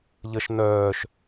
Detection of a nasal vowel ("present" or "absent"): absent